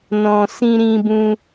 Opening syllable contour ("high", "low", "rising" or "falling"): low